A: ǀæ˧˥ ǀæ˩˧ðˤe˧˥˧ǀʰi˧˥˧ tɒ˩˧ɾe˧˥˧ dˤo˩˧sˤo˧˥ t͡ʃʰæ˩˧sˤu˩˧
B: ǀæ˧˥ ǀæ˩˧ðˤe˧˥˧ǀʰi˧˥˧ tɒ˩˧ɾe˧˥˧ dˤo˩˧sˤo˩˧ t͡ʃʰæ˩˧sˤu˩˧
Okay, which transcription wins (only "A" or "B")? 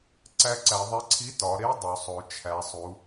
B